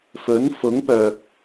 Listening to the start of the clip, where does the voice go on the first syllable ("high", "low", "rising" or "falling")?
rising